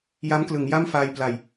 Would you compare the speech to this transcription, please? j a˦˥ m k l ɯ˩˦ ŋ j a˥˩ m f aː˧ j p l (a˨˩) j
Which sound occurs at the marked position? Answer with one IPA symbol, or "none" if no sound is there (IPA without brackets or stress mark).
a˨˩